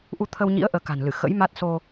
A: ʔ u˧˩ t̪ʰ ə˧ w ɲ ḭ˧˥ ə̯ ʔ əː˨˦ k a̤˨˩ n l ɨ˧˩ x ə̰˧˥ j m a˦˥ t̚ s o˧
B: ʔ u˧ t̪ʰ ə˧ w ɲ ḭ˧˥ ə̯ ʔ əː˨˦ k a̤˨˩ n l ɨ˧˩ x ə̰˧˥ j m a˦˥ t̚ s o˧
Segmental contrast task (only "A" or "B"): B